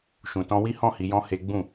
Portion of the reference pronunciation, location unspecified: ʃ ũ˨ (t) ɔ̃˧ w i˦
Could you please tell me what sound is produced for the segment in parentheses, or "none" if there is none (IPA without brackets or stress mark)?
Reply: t